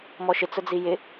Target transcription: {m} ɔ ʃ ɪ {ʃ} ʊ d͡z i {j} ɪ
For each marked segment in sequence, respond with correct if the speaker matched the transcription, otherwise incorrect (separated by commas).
correct, incorrect, correct